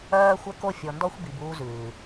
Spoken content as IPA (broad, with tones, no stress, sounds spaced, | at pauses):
ɜː˧ xʷ ə˧ k o˧ fʲ ɔ˨ n d ɔ˧ xʷ b i˨ b uː˧ z ʉː˨